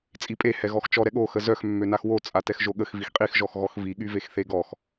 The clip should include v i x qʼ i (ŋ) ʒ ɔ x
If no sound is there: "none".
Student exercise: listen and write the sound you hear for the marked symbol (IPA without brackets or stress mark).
x